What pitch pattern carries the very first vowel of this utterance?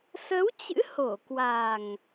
rising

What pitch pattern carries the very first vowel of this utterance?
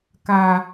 high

